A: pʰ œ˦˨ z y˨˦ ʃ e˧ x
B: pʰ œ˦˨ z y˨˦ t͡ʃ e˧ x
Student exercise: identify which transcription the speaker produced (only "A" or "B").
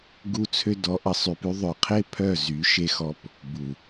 A